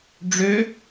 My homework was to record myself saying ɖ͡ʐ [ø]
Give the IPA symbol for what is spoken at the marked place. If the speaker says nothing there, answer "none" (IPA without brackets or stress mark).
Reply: ø